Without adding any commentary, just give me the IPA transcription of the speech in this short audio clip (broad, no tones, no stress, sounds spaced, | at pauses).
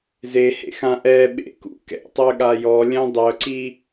z e h ḛ x ã ʔ ɛ ɓ ḛ k ṵ k ɛ̰ tˤ ø ɠ a j ɔ lʲ œ̃ dˤ œ ǀ i